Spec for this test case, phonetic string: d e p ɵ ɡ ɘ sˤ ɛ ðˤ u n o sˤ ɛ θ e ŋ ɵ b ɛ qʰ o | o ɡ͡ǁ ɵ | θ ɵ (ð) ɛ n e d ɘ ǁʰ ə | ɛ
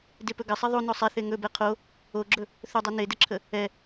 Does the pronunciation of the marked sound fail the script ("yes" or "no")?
yes